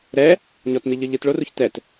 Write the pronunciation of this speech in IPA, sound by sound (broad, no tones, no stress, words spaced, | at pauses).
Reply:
ɾɛ | ɲɔtn̪iʎɯ ʎɯtɭoruç tɛt